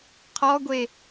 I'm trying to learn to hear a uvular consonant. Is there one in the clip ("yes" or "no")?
yes